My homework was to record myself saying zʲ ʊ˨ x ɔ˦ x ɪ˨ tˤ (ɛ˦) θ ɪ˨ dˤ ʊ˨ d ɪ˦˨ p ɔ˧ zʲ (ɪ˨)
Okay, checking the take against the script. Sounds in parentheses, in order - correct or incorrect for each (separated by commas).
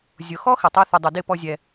correct, incorrect